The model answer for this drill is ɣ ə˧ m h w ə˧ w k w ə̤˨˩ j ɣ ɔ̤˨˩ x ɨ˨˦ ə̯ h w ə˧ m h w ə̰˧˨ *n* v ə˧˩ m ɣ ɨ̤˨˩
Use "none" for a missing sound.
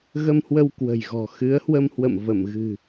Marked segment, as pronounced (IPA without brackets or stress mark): m